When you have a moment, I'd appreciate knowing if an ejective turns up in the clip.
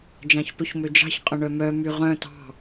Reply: yes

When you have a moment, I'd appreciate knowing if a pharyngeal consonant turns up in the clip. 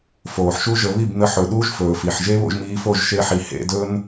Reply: yes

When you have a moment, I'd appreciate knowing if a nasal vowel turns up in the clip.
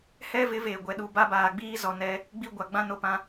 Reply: yes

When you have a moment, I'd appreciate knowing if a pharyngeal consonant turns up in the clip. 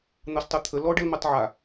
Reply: yes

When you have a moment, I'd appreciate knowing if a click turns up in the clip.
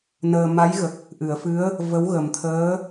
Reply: no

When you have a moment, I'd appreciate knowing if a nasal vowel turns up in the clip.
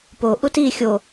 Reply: no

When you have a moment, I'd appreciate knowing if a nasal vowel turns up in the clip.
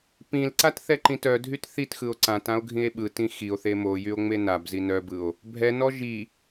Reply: yes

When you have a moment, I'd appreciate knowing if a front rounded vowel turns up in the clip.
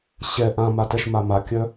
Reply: yes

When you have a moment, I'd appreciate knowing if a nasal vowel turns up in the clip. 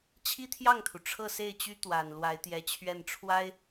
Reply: no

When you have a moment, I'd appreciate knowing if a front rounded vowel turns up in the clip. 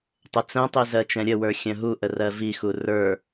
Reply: yes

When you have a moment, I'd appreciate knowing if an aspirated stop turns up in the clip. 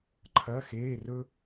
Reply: yes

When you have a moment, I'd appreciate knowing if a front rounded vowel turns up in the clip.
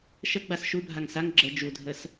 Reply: no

